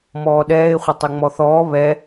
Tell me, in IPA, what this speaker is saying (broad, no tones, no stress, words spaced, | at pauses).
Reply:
mɔːɗɛːɪ̯ χʷətˤɛŋ͡mɔθɔː βɛ